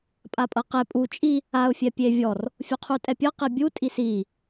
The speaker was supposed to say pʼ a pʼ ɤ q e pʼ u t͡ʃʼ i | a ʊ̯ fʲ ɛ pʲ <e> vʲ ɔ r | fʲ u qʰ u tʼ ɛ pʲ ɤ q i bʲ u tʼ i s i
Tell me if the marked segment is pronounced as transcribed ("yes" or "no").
yes